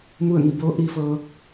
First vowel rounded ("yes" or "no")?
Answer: yes